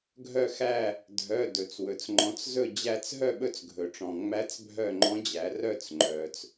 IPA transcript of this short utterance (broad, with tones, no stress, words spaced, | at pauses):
ɡʱœ˦˨xæ˦˨ | dʱœ˩˧˩ dɵ˩t͡swɵ˩t͡s ŋ͡ǃɔ̃˩˧t͡s zɵ˦˨ d͡ʑæ˦˨t͡s ɦœ˦˨ɓɵ˦˨t͡sɡʱɵ˩ʈ͡ʂɔ̃˩ ŋ͡mæ˧˥t͡sbʱœ˦˨ŋ͡ǃɔ̃˧˥d͡ʑæ˩˧ rœ˦˨t͡s ŋ͡ǃœ˩t͡s